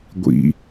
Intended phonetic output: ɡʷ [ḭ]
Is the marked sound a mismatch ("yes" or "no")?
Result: no